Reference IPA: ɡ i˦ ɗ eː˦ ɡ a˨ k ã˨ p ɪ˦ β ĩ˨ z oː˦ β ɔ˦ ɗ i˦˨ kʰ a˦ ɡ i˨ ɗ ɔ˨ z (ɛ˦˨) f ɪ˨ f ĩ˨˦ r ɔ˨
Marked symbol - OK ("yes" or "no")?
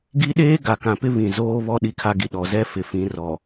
no